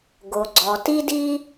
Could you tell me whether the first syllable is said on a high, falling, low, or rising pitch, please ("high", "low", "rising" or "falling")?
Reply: low